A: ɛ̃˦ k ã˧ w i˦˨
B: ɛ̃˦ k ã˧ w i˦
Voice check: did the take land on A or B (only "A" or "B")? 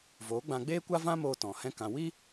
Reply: B